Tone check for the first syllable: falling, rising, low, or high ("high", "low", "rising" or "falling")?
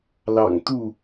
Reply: low